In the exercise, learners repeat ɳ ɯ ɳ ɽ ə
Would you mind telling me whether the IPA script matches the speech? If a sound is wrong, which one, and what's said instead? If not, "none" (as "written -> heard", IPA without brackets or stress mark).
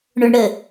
ɯ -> ʊ